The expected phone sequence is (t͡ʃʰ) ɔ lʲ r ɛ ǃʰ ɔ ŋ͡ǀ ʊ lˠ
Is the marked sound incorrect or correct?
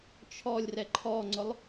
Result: correct